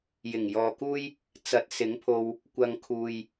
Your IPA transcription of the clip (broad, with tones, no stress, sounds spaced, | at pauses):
j ɪ˨˩ ŋ j ɔː˨ k uː˥ j | t͡s ɐ˨˥ t̚ s ɪ˨˥ ŋ pʰ o˧ w | kʷ ɐ˨ ŋ kʰ uː˨ j